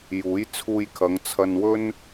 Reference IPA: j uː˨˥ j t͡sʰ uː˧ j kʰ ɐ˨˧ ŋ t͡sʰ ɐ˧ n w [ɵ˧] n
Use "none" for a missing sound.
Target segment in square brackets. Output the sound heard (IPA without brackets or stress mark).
ɵ˥